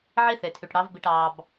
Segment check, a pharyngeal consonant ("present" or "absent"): present